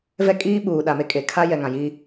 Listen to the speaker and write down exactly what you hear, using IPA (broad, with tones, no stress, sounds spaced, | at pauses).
v ɛ˦ kʼ iː˦ ɓ uː˨ ɗ a˨ m e˦ kʼ e˨ kʰ a˦ j ɛ˨ ŋ ã˨ j i˦